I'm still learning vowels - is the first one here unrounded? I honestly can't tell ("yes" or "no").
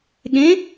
yes